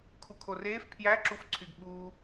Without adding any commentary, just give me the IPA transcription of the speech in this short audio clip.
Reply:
kʰ u kʰ o r eː f pʰ j æ ǁ u f ǀʰ y ɡ ɓ uː

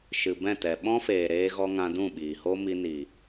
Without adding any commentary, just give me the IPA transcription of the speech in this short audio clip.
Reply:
ʃ ɨ˨ b ɛ̃˦˨ t ɛ˨ ɓ ɔ̃˦ f eː˨ ɾ eː˧ ɣ ɔ˧ ŋ ã˧ d ũ˦˨ ɓ iː˨ h oː˦ m i˧ n i˨

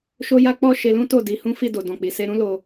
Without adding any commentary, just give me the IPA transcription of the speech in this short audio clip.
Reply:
ʃ o˦ j a˦ k͡p ɔ˦˨ ʃ e˧ l ũ˦ t o˦˨ d i˨˦ h ũ˦ f i˦˨ d o˨ d ɔ̃˨ k͡p i˨ s e˧ ɾ ũ˦ l o˧

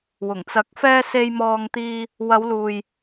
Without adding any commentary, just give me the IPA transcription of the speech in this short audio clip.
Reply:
w ʊ˨˩ ŋ t͡s ɐ˨˥ k̚ f ɛː˧ s e˧ j m ɔː˧ ŋ t̪ iː˧ | w ɐ˨˧ w l uː˨ j

